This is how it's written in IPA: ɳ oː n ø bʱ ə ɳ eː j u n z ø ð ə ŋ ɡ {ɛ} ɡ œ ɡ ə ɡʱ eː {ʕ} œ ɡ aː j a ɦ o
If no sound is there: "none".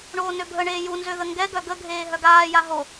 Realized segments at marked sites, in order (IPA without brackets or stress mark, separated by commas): ɛ, ɦ